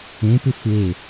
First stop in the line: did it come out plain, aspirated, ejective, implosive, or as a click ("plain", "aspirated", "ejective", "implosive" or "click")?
plain